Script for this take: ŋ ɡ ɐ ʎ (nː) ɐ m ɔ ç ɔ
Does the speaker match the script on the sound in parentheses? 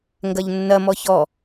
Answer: yes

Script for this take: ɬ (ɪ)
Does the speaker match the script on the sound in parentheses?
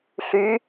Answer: no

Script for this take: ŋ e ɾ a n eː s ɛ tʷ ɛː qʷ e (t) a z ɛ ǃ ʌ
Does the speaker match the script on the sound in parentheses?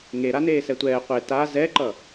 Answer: yes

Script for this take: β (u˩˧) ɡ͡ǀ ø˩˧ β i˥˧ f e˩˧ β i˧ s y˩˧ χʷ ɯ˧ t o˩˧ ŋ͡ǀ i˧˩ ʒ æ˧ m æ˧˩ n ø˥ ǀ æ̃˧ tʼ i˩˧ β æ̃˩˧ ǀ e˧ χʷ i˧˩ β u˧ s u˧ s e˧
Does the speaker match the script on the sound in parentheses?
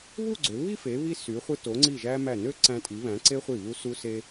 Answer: no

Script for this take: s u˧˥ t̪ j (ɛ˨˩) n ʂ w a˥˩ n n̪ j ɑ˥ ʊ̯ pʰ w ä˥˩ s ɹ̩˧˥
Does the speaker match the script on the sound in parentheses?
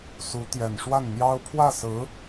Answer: yes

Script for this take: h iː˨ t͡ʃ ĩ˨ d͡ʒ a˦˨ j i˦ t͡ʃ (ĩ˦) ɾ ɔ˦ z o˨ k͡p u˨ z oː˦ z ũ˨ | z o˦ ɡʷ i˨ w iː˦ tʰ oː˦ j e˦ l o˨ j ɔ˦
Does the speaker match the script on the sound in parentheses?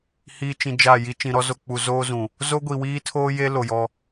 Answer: no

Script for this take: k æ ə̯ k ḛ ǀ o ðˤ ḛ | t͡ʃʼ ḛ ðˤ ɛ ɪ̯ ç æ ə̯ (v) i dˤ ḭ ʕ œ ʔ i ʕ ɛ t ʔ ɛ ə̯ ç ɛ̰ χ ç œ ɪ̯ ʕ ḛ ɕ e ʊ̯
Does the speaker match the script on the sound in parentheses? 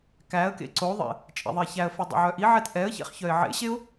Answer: no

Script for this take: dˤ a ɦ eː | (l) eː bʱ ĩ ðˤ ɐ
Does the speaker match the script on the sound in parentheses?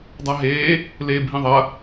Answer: yes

